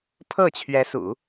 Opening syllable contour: falling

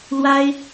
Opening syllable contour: high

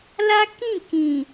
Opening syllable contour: high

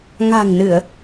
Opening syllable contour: low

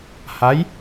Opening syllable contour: rising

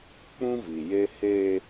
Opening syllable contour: high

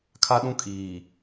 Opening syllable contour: high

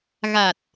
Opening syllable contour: low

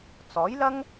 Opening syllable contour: rising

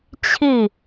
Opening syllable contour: falling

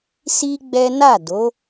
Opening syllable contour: high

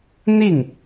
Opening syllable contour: falling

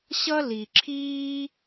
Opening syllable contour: high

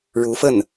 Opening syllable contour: rising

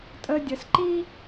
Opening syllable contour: high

